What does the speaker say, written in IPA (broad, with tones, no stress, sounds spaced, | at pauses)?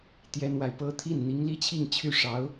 t̪ j ɛ˥ n w a˨ ɪ̯ p ɤ˥ t̪ʰ i˥˩ n n̪ i˧˥ ŋ l i˥ t͡ɕʰ i˥˧ ŋ t͡ɕʰ y˥˩ ʂ ɑ˧˥ ʊ̯